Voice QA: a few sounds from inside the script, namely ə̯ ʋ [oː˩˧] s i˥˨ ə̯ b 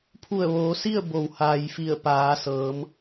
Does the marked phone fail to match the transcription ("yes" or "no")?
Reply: no